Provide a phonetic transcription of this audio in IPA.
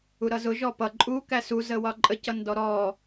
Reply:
u ɾ ʌ z ʊ ʒ ɔ p ʌ ǃʼ u k æ s u z ə w ɒ ǃʼ ə c ʌ n d ɔ ɾ ɔ

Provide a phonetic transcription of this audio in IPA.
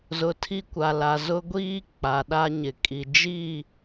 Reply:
z ʊ˨ tʰ i˦ kʷ a˨ l a˨ z ʊ˦ ɡʷ iː˦ k͡p a˨ ɗ a˦ ɲ ɪ˨ kʼ i˨ d͡ʒ i˦˨

